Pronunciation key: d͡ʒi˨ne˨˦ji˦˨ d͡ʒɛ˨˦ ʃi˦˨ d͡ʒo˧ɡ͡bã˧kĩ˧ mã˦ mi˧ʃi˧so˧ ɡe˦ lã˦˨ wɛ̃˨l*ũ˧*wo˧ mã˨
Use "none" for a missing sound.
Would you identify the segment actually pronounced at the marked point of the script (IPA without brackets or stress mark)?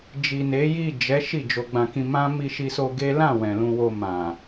ũ˧